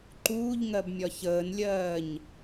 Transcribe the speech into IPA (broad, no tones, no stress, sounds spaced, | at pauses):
ǃ uː ʎ ŋ ɜ b mʲ ɒ ç əː n lʲ ɜː ɲ